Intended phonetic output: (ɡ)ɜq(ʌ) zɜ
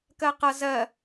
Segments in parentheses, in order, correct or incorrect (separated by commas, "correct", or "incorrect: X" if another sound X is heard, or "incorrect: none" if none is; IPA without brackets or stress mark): incorrect: k, correct